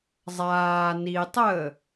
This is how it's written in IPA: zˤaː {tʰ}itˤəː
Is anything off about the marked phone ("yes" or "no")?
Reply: yes